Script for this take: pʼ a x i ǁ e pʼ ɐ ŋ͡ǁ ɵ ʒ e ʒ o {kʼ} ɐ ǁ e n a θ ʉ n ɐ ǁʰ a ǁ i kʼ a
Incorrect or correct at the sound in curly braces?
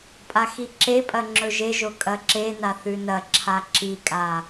correct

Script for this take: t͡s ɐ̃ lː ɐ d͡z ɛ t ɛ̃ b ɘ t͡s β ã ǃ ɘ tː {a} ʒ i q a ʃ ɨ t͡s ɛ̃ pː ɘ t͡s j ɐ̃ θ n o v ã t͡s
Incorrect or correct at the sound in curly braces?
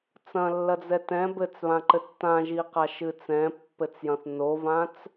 incorrect: ã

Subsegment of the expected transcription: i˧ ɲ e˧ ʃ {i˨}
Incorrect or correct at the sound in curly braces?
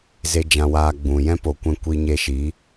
incorrect: i˨˦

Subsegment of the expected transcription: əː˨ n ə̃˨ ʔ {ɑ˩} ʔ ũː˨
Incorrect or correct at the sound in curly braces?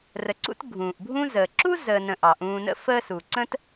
correct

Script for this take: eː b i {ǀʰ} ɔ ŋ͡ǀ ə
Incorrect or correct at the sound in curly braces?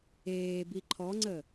incorrect: ǃʰ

